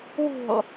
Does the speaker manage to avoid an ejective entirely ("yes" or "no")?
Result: yes